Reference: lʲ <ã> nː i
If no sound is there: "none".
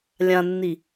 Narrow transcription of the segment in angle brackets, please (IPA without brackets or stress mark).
ã